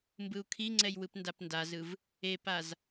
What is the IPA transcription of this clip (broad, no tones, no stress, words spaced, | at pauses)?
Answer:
mbɯu̯kʰiŋ͡ǀɛj wɯpndapndazɯv | epaz